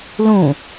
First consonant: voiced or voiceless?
voiced